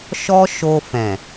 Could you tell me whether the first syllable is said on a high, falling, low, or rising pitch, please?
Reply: high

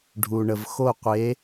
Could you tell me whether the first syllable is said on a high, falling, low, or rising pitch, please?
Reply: low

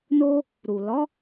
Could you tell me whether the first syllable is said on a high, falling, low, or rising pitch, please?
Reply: high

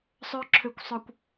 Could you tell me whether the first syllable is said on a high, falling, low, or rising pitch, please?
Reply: high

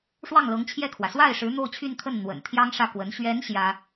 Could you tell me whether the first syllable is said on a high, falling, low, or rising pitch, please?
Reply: falling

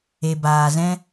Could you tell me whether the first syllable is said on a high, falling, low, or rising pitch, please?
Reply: low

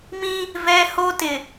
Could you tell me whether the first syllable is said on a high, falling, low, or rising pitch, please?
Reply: high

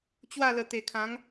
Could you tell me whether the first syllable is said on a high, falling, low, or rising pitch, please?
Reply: falling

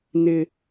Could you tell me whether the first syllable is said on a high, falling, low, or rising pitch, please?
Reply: low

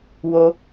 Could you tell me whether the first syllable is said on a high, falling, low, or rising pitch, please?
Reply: high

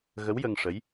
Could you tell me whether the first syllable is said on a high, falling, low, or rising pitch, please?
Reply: rising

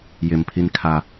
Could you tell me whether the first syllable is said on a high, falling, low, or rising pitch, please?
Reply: low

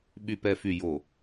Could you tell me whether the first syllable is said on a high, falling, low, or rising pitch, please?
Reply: low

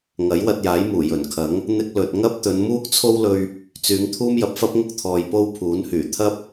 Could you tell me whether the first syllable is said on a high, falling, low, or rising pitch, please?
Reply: rising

